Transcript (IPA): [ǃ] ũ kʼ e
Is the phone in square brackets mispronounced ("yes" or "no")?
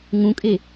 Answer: yes